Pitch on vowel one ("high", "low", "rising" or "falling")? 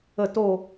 falling